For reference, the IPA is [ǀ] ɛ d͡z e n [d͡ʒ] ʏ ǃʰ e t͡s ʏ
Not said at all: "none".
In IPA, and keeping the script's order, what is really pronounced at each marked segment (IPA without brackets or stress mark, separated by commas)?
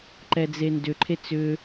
ǃ, d